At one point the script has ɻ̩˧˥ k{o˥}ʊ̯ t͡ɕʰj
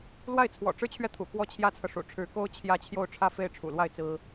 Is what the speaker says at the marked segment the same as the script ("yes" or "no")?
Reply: yes